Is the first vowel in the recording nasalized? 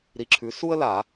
no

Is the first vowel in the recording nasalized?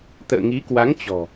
no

